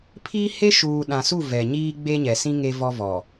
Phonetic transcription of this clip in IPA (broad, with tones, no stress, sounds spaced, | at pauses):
pʰ iː˦ h e˦ ʃ uː˨ ɗ ã˨ s u˦˨ v ɛ˨ ɲ iː˦ ɡ͡b e˦ ɲ ɛ˨ s ĩ˦ ŋ e˦ v ɔ˦ v ɔ˨